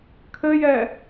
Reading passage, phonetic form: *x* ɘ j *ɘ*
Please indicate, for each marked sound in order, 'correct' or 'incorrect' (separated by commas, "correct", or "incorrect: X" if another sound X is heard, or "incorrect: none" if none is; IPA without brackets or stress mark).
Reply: incorrect: kʰ, incorrect: ɛ